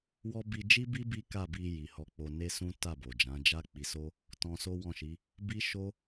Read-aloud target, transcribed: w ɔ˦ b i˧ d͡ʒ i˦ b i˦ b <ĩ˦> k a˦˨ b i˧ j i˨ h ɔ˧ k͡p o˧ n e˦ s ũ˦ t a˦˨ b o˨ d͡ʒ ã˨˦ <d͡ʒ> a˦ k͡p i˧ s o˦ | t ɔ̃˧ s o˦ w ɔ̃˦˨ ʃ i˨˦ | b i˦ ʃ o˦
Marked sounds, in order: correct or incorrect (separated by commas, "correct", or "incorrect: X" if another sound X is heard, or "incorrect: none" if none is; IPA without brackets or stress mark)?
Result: incorrect: i˦, correct